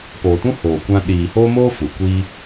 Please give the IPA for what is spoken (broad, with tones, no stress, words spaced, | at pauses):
poː˨tũ˦ hoː˨ kʷã˧ ɗiː˨hoː˦moː˦ fu˨kʷiː˦